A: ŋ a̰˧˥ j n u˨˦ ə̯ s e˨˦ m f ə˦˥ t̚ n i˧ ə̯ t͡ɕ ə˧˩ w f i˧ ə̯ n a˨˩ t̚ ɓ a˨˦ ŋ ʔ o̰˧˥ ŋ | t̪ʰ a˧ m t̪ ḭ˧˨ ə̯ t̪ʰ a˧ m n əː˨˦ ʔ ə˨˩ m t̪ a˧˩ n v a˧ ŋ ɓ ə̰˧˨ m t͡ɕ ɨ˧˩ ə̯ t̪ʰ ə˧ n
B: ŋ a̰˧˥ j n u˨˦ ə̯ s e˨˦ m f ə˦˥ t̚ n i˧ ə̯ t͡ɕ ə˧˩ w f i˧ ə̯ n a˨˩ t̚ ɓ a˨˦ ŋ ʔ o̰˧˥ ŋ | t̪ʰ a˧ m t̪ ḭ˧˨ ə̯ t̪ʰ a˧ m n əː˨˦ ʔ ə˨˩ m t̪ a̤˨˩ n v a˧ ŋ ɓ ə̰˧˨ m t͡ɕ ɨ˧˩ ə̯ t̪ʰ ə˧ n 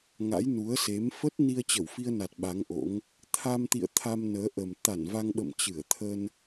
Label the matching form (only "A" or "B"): A